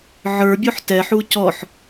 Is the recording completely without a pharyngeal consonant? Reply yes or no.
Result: no